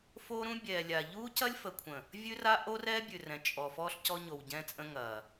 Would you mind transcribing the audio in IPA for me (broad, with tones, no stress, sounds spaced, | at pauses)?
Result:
f o˦ ɾ ũ˦ bʲ ɛː˨ lʲ a˨ ʎ uː˦ c ɐ˦ lʲ f ə˨ kʷʰ ə̃˨ | vʲ ʉ˦ r a˦ ʔ o˦ r ɛː˦ bʲ ʉ˨ r ɛ̃˨ t͡ʃʼ ɔ˨ f ɔː˦ ɬ c ɔ˦ ɲ o˨ w ɟ ɛ̃˦ t͡sʼ ə̃˦ ŋ ɐː˨